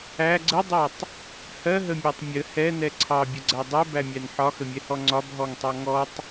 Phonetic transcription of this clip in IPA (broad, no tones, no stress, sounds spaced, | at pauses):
æ ɡ͡ǀ ə dˤ ɜ tˤ | h ɜ ɦ ə mʲ æ tˤ mʲ ə h ɛ n ɛ ǀʰ ɑ bʲ ə ɡ͡ǀ æ dˤ ɛ b æ mʲ æ n ħ ɒ x ə mʲ ɛ h ɔ ŋ͡ǀ ɒ b ɦ ɔ ŋ tˤ ɑ ŋ ɔ tˤ